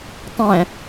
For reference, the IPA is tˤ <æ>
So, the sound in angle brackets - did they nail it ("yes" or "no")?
no